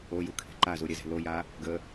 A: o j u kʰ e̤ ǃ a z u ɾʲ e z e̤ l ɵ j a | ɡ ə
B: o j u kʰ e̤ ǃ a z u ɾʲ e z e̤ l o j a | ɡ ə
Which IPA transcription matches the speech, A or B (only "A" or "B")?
B